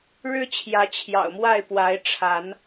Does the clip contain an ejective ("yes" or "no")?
no